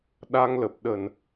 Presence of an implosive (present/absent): present